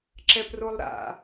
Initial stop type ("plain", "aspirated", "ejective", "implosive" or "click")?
click